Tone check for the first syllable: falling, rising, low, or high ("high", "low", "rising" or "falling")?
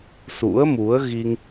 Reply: rising